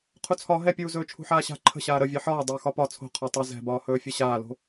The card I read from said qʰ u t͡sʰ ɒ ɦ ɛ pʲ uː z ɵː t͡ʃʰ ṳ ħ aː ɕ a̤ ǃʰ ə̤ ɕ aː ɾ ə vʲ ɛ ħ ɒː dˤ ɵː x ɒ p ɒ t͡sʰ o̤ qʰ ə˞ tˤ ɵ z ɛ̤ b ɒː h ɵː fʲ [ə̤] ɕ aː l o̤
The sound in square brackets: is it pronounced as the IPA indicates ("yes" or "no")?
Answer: no